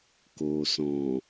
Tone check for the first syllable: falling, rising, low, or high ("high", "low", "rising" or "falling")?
low